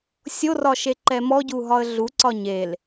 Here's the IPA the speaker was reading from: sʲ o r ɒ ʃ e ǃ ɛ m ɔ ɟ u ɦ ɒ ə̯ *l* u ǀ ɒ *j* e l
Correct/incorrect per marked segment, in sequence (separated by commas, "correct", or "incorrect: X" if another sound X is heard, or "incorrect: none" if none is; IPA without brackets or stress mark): incorrect: ɮ, incorrect: ɲ